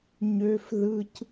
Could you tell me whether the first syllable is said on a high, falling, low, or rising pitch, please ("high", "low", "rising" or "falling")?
high